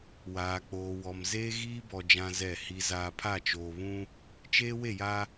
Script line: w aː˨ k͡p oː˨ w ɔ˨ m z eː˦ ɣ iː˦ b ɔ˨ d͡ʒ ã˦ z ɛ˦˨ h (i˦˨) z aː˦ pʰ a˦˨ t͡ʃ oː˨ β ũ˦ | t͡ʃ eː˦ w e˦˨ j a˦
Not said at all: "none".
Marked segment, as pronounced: i˦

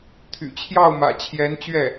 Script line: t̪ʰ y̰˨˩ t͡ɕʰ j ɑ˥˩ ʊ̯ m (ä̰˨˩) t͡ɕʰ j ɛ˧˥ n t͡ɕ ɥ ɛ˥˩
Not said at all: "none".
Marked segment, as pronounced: ä̰˨˩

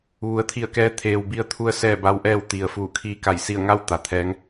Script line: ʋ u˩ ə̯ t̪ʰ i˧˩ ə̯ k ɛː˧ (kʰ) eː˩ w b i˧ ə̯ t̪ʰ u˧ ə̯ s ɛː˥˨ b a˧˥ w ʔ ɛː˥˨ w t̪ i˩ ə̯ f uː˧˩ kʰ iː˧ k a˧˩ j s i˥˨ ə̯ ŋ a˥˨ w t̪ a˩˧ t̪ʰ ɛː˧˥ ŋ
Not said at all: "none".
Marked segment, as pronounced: t̪ʰ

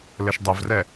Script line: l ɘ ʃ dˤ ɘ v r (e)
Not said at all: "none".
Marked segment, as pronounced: ɛ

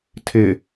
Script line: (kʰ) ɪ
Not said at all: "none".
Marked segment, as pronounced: tʰ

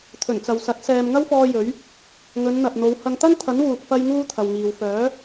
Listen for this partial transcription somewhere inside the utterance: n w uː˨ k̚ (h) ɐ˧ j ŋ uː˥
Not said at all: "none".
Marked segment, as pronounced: f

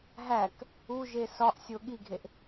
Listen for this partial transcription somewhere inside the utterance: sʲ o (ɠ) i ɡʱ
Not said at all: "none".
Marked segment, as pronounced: ɠ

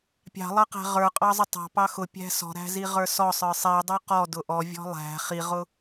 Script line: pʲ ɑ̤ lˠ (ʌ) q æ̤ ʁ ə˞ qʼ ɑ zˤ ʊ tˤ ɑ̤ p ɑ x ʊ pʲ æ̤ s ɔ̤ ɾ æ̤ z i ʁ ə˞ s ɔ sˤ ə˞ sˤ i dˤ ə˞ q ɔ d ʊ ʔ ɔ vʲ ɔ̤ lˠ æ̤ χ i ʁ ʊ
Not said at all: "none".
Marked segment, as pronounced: ʌ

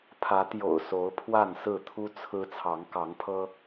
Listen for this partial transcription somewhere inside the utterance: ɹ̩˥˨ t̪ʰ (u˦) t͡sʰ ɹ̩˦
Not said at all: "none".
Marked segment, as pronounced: u˦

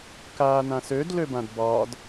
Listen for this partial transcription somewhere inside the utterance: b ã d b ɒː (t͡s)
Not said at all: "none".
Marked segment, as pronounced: d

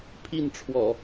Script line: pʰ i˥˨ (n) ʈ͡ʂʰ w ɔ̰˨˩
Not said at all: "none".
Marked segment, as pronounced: n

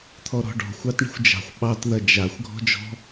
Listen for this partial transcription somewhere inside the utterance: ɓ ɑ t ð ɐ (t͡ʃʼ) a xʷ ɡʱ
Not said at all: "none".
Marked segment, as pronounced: d͡ʒ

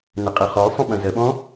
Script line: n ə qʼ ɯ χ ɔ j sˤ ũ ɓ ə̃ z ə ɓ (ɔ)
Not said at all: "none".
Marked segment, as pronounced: ɔ̃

